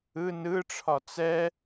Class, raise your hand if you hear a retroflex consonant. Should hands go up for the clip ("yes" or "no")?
yes